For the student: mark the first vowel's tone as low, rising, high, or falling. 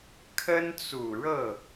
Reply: high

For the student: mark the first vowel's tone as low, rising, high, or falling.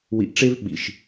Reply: low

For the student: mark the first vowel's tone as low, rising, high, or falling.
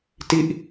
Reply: falling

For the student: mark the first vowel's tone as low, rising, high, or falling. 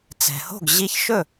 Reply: low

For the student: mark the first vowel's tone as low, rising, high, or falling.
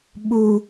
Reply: low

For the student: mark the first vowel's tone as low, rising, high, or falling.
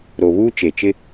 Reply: low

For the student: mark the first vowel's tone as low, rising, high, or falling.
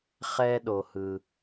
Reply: high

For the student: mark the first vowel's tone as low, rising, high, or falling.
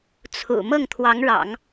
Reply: low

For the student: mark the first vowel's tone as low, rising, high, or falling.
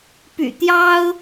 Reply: low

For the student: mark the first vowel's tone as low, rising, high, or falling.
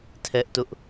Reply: high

